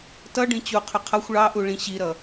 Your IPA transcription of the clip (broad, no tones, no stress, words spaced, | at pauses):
tʌ ɖĩt͡ɕuqʰʊ qʰʌxʷ ɭɑʔu ɭĩɕiɾʌ